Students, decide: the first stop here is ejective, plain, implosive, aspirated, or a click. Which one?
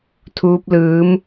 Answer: aspirated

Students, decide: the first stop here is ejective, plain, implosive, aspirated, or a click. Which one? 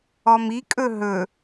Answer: ejective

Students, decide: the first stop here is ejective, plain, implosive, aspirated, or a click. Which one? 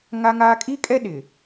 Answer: ejective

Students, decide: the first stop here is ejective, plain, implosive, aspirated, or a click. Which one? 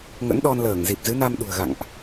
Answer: implosive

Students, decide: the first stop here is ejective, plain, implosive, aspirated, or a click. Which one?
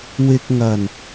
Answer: plain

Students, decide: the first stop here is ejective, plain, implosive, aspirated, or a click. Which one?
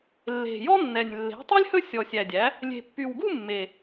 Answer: plain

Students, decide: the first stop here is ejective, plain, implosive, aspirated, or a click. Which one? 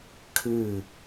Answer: aspirated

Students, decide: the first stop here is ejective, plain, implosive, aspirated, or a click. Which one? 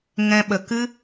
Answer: implosive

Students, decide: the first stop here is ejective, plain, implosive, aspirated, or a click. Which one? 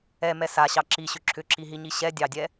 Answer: click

